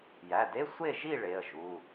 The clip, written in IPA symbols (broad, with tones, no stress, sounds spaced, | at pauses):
j æ˩˧˩ d e˧˥˧ sʷ e˥˨ ʒ i˥˨ ɭ e˩˧˩ ə̯ ʒ u˩˧˩